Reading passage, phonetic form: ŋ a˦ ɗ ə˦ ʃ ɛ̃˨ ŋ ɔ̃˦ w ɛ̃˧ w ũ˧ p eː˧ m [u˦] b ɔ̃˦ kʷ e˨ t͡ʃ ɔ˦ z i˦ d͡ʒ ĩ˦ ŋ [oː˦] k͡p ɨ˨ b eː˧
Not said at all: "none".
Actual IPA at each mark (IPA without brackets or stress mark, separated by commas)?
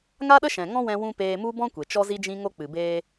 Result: u˦, o˦